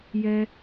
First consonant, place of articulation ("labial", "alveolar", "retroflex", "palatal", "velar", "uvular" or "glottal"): palatal